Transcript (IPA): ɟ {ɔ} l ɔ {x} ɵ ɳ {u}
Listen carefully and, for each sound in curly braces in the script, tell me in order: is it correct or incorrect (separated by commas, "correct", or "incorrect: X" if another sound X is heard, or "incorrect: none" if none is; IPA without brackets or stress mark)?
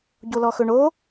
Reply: incorrect: o, correct, incorrect: o